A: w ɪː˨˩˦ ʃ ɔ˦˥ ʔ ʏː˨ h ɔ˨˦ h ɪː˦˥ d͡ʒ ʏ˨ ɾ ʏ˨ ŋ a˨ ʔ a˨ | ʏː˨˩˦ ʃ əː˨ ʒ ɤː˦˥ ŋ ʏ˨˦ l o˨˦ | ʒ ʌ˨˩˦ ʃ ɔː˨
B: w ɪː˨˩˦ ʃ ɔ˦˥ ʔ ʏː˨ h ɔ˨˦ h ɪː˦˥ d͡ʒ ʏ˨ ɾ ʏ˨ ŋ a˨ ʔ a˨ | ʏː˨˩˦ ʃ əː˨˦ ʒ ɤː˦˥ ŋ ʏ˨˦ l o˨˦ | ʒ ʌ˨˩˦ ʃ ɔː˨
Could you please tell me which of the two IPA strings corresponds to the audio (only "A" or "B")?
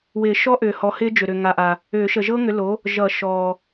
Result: A